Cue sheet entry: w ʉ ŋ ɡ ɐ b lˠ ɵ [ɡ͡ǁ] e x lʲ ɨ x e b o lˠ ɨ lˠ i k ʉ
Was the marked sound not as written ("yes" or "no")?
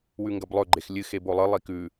yes